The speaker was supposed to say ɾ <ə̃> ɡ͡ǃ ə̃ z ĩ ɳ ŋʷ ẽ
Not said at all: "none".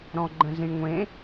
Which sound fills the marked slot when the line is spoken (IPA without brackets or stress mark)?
ɔ̃